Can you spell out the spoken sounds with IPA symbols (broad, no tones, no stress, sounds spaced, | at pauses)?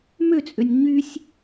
m ø t͡sʼ ø nʲ ɲ y sʲ